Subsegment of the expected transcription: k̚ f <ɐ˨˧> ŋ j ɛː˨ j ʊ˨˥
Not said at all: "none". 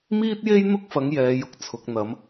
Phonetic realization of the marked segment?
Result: ɐ˨˧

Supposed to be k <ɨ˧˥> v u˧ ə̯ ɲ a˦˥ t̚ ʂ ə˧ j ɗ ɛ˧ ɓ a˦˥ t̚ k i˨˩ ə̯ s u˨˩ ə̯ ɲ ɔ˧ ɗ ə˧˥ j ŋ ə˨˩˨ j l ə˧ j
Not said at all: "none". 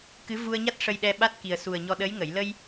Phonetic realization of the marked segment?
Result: ɨ˧˥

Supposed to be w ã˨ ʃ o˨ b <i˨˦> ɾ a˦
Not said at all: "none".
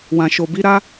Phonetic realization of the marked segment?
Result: i˨˦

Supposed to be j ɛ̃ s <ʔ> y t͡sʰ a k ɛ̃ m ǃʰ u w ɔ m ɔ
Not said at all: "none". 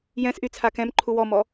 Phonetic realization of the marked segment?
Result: ʔ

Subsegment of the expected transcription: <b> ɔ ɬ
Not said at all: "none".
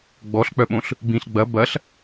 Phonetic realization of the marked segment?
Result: ɡ͡b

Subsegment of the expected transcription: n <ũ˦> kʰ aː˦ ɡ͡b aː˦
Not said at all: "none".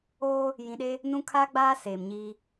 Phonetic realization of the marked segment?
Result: ũ˦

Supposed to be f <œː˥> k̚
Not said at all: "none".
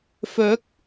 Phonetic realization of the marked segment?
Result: œː˨˥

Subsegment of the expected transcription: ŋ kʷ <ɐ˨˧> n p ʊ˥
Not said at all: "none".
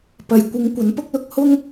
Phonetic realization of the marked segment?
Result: ɐ˨˥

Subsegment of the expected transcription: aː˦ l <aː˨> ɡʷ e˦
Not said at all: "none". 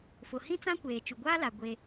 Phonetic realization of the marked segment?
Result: a˨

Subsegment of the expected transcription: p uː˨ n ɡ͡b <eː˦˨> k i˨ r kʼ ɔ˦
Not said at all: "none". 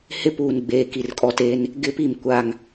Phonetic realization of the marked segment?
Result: eː˨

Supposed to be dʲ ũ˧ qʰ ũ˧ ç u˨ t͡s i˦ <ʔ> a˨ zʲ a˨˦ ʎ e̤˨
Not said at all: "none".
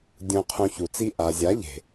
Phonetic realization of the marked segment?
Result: ʔ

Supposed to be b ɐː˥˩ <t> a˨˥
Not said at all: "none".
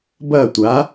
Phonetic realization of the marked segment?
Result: tʷ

